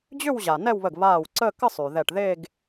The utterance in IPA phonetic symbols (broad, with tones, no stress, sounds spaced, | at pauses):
d͡ʑ ʏ˥˧ w ʑ a˩ n ɛ˥˧ w β ə˧˩ ɡ β aː˧˩ w ǀ əː˥˧ k ə˥˧ sˤ y˩ ð ɛ˧˩ ʈ ð e˥˧ ɡ